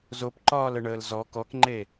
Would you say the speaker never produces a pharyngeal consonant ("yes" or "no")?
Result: yes